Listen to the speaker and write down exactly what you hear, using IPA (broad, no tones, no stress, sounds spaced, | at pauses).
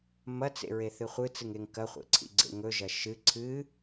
m ɐ t͡s ḛ ɹ e θ ɨ χʷ ɨ t͡s ɨ ŋ e ŋ k ɐ χʷ ḛ ǀʰ ḭ ɡ͡ǀ ḛ ŋ ɵ ʒ ɐ ʃ ɨ ǀʰ ɨ